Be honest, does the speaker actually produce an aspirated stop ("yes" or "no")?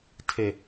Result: yes